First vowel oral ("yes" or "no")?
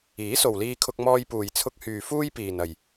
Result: yes